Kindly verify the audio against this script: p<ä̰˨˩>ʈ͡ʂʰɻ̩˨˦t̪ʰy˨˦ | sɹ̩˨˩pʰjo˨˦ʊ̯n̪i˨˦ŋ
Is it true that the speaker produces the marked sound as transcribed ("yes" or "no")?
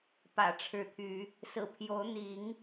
yes